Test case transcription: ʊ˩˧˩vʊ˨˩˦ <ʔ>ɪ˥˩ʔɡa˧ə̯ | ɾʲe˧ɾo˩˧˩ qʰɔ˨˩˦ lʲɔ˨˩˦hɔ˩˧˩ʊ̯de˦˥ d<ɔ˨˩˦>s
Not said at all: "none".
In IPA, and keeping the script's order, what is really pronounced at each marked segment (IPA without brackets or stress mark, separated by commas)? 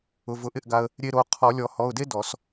ʔ, ɔ˨˩˦